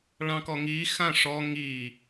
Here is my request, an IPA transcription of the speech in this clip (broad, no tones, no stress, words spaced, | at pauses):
ɭɑ̃kɔŋi xãʂɔ ŋi